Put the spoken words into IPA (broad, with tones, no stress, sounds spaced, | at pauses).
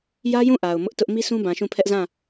j ä˦ j ũ˦˨ ʔ a˨ ʊ̯ m ʊ˦ ʔ t ʊ˦ ʔ m i˦ sʰ ũ˦ b ã˨ ʃ ũ˦˨ pʰ ɛ˦ ʔ z ã˦˨